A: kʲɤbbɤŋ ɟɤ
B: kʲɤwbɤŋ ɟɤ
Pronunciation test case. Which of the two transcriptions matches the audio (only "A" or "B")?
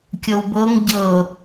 B